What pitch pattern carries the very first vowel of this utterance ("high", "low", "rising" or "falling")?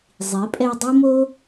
rising